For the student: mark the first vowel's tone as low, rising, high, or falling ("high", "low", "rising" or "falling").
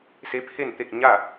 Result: rising